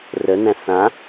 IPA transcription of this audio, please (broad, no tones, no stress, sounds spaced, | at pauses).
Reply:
r ə n æ̃ θ ã